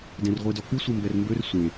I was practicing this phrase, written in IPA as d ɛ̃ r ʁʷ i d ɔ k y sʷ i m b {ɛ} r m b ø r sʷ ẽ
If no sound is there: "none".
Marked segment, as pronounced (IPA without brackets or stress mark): ɛ